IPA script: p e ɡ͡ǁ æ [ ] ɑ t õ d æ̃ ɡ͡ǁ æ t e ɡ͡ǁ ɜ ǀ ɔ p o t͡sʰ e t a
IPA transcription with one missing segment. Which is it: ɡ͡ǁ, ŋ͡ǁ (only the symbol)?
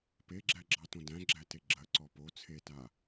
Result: ɡ͡ǁ